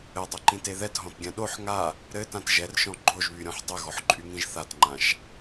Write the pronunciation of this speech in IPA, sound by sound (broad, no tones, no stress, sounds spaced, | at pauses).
ɘ dˤ ɛ ǃ ĩ t e ð ɛ t ɦ ɔ̃ t ɡʲ ã ɗ o ħ ŋ a | ɾ ɘ t ã t ʒ ɛ r ʃ ɔ̃ ɡ͡ǃ o ʒ β y ɾʲ ɔ̃ ħ dˤ ɘ ɣ ɔ ħ ǃʼ y ŋ ĩ ʒ θ a t ŋ͡ǃ ã ʃ